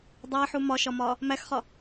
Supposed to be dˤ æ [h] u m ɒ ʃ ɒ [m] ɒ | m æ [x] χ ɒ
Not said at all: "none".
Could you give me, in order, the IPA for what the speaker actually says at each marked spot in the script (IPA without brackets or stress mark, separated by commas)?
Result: ħ, m, x